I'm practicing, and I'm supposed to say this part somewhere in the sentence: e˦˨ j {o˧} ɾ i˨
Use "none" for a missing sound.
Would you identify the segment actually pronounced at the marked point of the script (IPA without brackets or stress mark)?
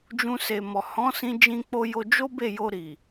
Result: o˧